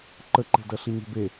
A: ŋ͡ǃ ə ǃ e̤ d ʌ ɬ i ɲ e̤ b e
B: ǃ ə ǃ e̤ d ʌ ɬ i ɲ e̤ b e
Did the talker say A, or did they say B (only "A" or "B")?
B